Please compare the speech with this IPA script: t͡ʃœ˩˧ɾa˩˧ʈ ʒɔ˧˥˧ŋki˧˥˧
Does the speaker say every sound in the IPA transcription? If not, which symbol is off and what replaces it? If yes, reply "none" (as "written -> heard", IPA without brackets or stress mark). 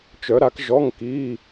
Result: ʈ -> k